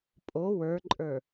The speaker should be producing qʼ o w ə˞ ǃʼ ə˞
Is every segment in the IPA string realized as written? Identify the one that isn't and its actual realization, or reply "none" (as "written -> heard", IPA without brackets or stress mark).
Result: qʼ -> pʼ